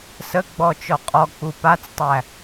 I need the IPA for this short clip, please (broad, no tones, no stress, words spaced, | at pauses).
səɡ͡bɔt͡ʃɔ qʼɔk͡pu pat͡stˤæ